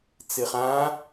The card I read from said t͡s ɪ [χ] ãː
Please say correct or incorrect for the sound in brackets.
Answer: correct